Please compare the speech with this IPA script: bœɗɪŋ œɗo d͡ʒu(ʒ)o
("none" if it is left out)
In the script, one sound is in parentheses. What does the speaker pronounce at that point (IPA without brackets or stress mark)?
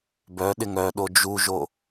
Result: ʒ